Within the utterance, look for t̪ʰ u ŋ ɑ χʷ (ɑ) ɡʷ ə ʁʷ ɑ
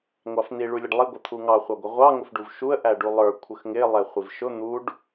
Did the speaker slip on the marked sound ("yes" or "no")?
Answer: no